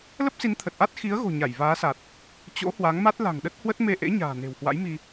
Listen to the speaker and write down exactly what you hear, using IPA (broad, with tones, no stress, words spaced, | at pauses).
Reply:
lə˦˥p̚si˨˦nt̪ʰə˨˩t̚ʔa˦˥t̚ xi˨˦ə̯ɣo̤˨˩ ɲa˧˩jvaː˨˦sa˨˩t̚ | t͡ɕo̰˧˥hwa˨˦ŋma˦˥t̚ la̤˨˩ŋɗə˦˥t̚hwə˦˥t̚me˧ ʔḛ˧˥ɲa̤ː˨˩ ne̤˨˩whwa̰˧˥jmi˧